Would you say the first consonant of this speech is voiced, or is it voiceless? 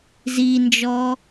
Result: voiced